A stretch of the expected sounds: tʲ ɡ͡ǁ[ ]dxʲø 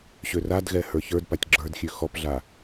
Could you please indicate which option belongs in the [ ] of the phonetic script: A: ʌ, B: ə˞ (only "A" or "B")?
B